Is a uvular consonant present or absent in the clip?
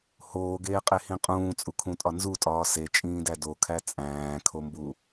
present